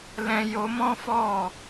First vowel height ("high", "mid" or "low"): mid